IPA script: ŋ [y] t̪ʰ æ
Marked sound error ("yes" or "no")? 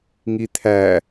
yes